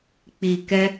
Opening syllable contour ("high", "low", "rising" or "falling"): low